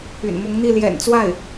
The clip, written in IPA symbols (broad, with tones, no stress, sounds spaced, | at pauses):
y̰˨˩ n m ʊ˧˥ ŋ n̪ i˥˩ l j ɛ̰˨˩ n t͡s w a˥˩ ɪ̯